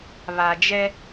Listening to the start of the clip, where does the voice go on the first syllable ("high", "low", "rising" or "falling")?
low